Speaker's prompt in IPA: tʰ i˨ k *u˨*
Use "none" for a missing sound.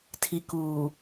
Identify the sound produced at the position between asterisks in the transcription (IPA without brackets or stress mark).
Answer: uː˨